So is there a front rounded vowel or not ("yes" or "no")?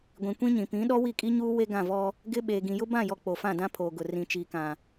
no